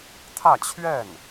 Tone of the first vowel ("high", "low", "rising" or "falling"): falling